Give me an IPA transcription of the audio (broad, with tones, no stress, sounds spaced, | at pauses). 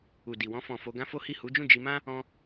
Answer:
u˨ d i˨ w ɔ̃˧ f ɔ̃˨ f o˧ ɡ ã˦ f o˦ h i˦˨ h u˨˦ d͡ʒ ũ˦˨ d͡ʒ i˧ m ã˦ | ɔ̃˧